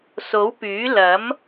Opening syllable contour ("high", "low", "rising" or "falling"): rising